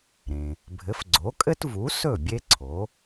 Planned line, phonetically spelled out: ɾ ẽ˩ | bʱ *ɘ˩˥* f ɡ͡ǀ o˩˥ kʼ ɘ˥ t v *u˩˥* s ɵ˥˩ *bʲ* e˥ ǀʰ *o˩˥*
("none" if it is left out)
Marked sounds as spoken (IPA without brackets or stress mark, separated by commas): ɘ˩˥, u˩˥, bʲ, o˩˥